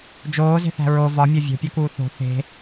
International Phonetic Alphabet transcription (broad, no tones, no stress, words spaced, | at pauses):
d͡ʒoːze̤θæ̤ ɹo vɒmʲo vʲo̤pʲokuː θo̤ θe̤